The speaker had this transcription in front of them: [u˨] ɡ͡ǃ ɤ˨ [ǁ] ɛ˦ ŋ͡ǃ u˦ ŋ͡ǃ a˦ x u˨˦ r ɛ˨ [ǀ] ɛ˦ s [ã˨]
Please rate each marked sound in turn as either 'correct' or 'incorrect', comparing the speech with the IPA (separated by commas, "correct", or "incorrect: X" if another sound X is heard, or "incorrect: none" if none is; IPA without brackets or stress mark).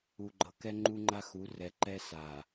correct, incorrect: k, incorrect: ǃ, incorrect: a˨